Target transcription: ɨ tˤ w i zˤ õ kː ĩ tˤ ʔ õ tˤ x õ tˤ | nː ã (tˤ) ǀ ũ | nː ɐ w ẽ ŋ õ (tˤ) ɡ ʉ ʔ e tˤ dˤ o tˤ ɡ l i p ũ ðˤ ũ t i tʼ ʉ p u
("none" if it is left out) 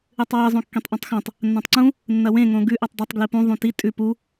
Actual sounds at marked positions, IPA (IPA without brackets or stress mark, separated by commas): tˤ, none